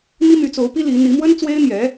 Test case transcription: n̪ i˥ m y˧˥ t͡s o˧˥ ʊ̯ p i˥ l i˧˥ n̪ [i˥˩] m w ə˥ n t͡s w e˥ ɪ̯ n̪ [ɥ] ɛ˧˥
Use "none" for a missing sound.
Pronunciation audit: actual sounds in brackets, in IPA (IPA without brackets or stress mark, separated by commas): i˧˥, j